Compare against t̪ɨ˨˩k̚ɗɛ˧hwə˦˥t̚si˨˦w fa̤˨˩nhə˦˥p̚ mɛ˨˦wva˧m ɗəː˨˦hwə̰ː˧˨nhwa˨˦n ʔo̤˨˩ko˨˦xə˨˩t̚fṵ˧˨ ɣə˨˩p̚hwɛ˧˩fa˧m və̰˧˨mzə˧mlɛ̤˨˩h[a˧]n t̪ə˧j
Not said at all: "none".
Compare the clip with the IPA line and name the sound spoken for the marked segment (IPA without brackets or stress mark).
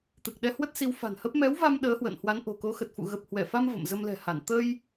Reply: a˧˩